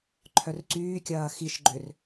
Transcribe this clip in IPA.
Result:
ǃʰ œ r ǀ yː kʲ ɐː x i ʃ ɡ͡ǃ ʏ r

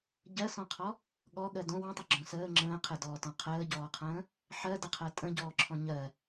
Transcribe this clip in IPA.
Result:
ɟ ɜ s ɔ̃ qʰ ɔ | ɠ ɔ ɠ ɜ d õ w õ tˤ ə ɡ͡ǁ õ s əː ŋ͡ǁ ə̃ː qʰ ə d ɔː t ɔ̃ qʰ əː ɟ ɔː qʰ ə̃ː | ħ ɜ d ə qʰ ɜ tʼ ə̃ ɟ ɔː ǁʰ ɔ̃ ɲ ɜ

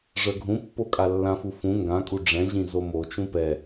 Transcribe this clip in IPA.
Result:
ʐ ə˞ ɡʱ ũ pː o kʼ a lː ã f u f ũ ŋ ɡ ã kʼ u ɖ͡ʐ ɛ̃ ʑ ĩ z o m o t͡ʃ ũ p ɛ

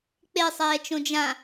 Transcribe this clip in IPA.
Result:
k͡p e sˤ ɛː t͡ʃ õ d͡ʒ ã

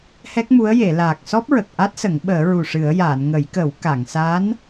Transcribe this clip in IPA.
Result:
h ɛ˦˥ k̚ m u˧˥ ə̯ j e˨˩˨ l aː˨˩ k̚ s ɔ˦˥ p̚ ɹ ə˨˩ k̚ ʔ a˦˥ t̚ s ə˨˩˦ ŋ ɓ əː˨˩˦ ɹ u˨˩ ʂ ɨ˨˩˦ ə̯ j aː˨˩˨ n ŋ ə˨˩˦ j k ə˨˩˦ w k a˨˩˨ ŋ s a˧˥ n

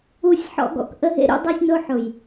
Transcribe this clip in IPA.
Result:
u˦˨ sʲ ħ ɔ̰˦ ɡ ɔ̰˦ k ʔ ə˦ ɦ ḛ˦ ɾ ṵ˦ dˤ ʉ˦ sʲ n o˦ ħ ʊ˨ j

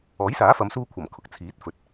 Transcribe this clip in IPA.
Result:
ɔː˨˥ j s aː˨˥ f ɐ˨˧ m s uː˧ kʷʰ ɐ˨˩ m kʰ ʊ˨ k̚ t͡sʰ iː˨˥ t̚ f ɵ˨˥ t̚

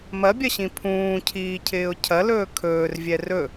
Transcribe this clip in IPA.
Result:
m ɐ bʲ ɐ ɕ ĩ pʰ ũː cʰ iː cʰ ɪː ʊ̯ cʰ ɐ l ɵː kʰ ɵː r vʲ ɛ r ɵ

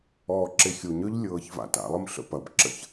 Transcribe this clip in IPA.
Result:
ɔː ǁ e xʲ o ɲ œ ʎ lʲ ɤː ç v a̰ t a̰ lˠ ə m ɬ ə̰ p ɐ b ǁ ə̰ ç

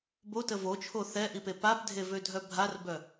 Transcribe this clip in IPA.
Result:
b o t ə v o t͡ʃʰ o θ ɛ ʔ i p e p a p dʱ e v ø dʱ œ bʱ a r b œ

